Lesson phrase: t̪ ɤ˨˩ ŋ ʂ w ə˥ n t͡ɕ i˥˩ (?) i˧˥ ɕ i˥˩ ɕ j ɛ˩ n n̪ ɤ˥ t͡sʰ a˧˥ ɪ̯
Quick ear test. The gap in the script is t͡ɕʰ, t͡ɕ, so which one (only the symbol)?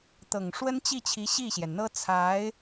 t͡ɕʰ